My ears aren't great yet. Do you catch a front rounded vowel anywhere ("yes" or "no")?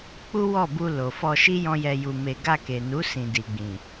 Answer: no